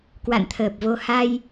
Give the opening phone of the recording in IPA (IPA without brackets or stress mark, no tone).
k